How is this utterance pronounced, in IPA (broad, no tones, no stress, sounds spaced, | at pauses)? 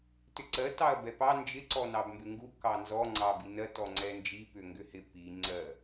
t ʏ ǀ ɜ t ɑ ɐ̯ b ɛ p ɑ n d͡ʒ ɪ ǀ ɔ n ɑ b m b ɪ ŋ ɡ u k ɑ n z ɔ ŋ͡ǀ ɑ b i n ɜ t ɔ ŋ͡ǀ ɛ n d͡ʒ i p ʏ ŋ ɡ ʏ h ɪ p i ŋ͡ǀ ɜ